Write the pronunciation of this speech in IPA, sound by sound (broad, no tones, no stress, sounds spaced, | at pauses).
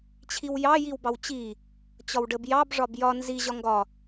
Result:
t͡ɕʰ i w j ɑ j i w b ɑ w t͡ɕ i | t͡ɕ ɒ w ɖ ə b j ɑ b ʐ ɒ b j ɒ n z i ʑ ɒ ŋ ɡ ɒ